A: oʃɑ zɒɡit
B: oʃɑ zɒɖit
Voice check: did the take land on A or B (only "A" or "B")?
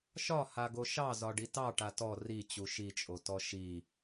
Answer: B